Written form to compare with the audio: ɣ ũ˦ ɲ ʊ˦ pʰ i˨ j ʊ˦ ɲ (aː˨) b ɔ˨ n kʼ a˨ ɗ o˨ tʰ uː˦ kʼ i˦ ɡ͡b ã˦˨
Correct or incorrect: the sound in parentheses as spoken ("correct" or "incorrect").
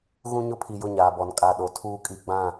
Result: correct